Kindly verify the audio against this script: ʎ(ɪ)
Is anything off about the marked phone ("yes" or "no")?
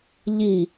yes